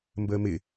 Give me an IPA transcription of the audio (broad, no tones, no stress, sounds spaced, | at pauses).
m b əː m ɪ